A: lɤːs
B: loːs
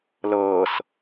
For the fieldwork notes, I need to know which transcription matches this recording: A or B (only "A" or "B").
A